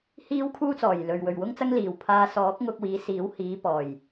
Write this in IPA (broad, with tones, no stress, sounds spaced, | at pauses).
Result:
h iː˥ w kʰ uː˥ t͡s ɔː˨˩ j l ɵ˨ ɥ w ɵ˨ ɥ w ʊ˥ ŋ t͡s ɐ˥ ŋ l iː˨˩ w pʰ aː˧ s ɔː˨˥ k̚ ŋ ʊ˧ k̚ w iː˨˧ s iː˨˥ w h iː˨˧ p ɔː˨˩ j